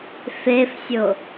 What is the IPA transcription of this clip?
f e f sʲ o

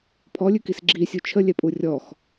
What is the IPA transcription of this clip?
pʰ ɔ lʲ ʉ k i s ɡ͡ǁ i sʲ u t͡ʃʰ ə lʲ ɛ pʼ u rʲ ɔ x

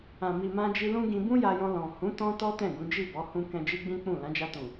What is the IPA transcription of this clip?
ã˨ m i˨ m ã˧ d͡ʒ i˧ l ũ˦ ɡ ĩ˧ b ũ˦ j a˧ j ɔ̃˧ l ɔ̃˨ h ũ˨˦ t ɔ̃˦ t ɔ˦ t ɛ̃˦˨ ɡ ũ˨˦ d͡ʒ i˦˨ b ɔ˨˦ h ũ˧ k ɛ̃˧ d͡ʒ i˦ ɡ͡b ĩ˦ k͡p ũ˦˨ l ã˨˦ d͡ʒ a˧ t ũ˨

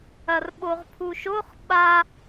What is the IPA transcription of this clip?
ɐ r ɓ o ʁ pʰ u ʃ o χ ɓ a

